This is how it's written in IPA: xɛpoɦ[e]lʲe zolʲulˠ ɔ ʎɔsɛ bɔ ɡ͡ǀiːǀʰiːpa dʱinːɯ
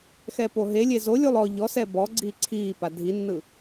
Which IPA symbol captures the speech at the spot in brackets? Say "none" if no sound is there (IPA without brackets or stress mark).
e